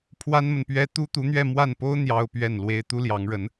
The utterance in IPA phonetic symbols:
pʰ w a˥ n m ə˨ n p ɥ ɛ˥ t̪ u˥ t̪ u˧˥ n̪ ɥ ɛ˥˧ m w a˥˩ n p o˥ ʊ̯ n̪ j ɑ˥ ʊ̯ p ɥ ɛ˥˩ n l w e˥ ɪ̯ t̪ u˥ l j ɑ˧˥ ŋ ɻ ə˧˥ n

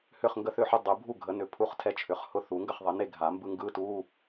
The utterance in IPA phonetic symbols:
h ʏ˥˩ χ ŋ ɡ ə˥˩ θ ʏ˥˩ ħ ʏ˧˥˧ dˤ ɯ˨˩˦ bʱ u˥˩ ɡʱ ə˨˩˦ n ʏ˨˩˦ pʰ u˧˥˧ χ tʰ ɛ˥˩ t͡ʃʰ ʏ˨˩˦ χ h ʊ˧˥˧ θ u˨˩˦ ŋ ɡ ə˥˩ χ ðˤ ə˨˩˦ n e˥˩ ɡʱ a˨˩˦ m b ɯ˧˥˧ ŋ ɡ ɯ˧˥˧ t u˧˥˧

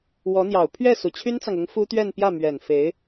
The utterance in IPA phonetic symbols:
w ɔ˧˥ n̪ j ɑ˨˩ ʊ̯ pʰ ɥ ɛ˥˩ s u˨˩ t͡ɕʰ y˥ n t͡s ɑ˨ ŋ ʊ˧˥ ŋ f u˥ t̪ ɥ ɛ˥˧ n p j ä˥˩ m ɥ ɛ˨˩ n f e˧˥ ɪ̯

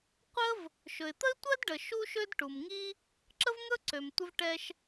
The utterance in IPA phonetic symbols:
qʷ ə˥ v | ʃ ɵ˩ ɪ̯ t̪ ə˥ ɪ̯ tʷ ɜ˥ d ɖ ə˩ ʃ u˥ ʃ ø˥ d ʈ u˩ m ŋ i˥ | ǁ ə˥ v ŋ ɵ˥ ǀ ø˩ m tʷ ə˥ v ʈ ɛ˥ ʃ

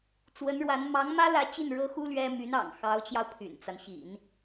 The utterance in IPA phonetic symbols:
t͡s w ə˧˥ n ɻ w a˧˥ n m ɑ˧˥ ŋ m ä˥ l ä˧˥ t͡ɕ i˥˩ n ɻ ɤ˥ x u˥ l ɥ ɛ˥ m y˧˥ n ɑ̰˨˩ ŋ x ɑ˧˥ ʊ̯ t͡ɕ j ɑ˧ ʊ̯ pʰ y̰˨˩ n t͡s a˦ n ɕ ḭ˨˩˦ n

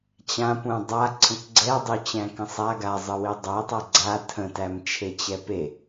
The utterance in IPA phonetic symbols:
t͡ɕ ã p ũ dˤ a ǀʰ ə̃ k ɡ͡ǀ ɛ dˤ ø t͡ɕ æ̃ k ə̃ sˤ a ɡ a zˤ ə w i dˤ æ tˤ æ ɡ͡ǀ a tʰ ə̃ t æ m t͡ʃʰ e t͡ɕ ɛ p e

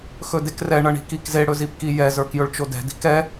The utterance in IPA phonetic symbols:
x ɵ d e k r ɛ ɳ ʌ ɳ i̤ k i k z e ɽ ɵ z i p k i j ɛ z ə˞ k j ɵ ɭ t͡ʃ o d ɛ̤ d i̤ k ɛ

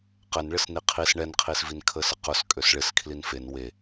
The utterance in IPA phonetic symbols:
q ɛ n ɭ ɪ s n i qʰ i s ɳ ɛ n qʰ i s v i n kʰ ə s ə q ʊ s kʼ ø s ɭ ɪ s kʰ l i n f e n w e

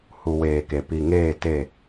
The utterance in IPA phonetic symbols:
h u˨ w eː˨ k e˨ p i˨ ŋ eː˦˨ t e˦˨

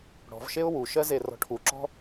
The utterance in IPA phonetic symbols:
ɽ ɔ̤ v ʃ e ʊ̯ w u ʃ ɜ z e r ɔ̤ ʈʰ u ǁ ɔ̤

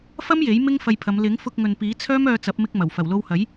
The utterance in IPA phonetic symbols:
f ɐ˥ m j e˨˥ j m ɪ˥ ŋ f ɐ˧ j pʰ ɐ˨˧ m l ɪ˨˥ ŋ f ʊ˧ k̚ ŋ ɵ˨ n p iː˨˥ t͡sʰ œː˥ m œː˧ t͡s ɐ˨˥ p̚ m ɪ˧ k̚ m ɐ˨˩ w f ɐ˨˩ w l o˧ w h ɐ˨˥ j

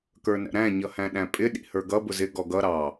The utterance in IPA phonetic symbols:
k ə˞ n æ̰ ɾ æ̃ ɲ ʌ h æ̃ ɗ æ̃ pʼ ɪ ɗ ḭ h ə˞ ɡ ʌ b ʊ z ɪ ɡ ɔ ɡ ʌ ɾ ɑ

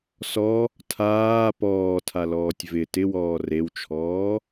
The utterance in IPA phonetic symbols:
s ɔ | tʰ aː p ɔː tʰ a l ɔː tʲ v ɪ t ɪ w ɔː r e w t͡ʃʰ ɔː

